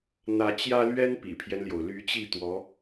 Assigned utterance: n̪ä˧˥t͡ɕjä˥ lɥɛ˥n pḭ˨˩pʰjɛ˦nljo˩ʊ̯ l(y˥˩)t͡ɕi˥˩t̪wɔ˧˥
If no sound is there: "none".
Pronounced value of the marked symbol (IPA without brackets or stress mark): y˧˥